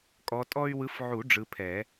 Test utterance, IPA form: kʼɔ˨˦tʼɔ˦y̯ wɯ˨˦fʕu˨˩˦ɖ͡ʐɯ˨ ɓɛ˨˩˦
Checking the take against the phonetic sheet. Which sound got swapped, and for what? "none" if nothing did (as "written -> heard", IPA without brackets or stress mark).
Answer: ɓ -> pʰ